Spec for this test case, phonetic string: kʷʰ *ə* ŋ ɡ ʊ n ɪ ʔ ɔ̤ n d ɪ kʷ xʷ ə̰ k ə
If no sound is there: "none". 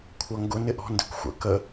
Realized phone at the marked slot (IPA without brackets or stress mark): ʌ